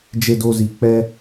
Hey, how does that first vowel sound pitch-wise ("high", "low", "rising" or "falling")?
low